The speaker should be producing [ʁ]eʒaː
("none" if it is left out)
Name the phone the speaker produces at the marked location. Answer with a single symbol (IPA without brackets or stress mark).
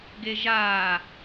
ɡ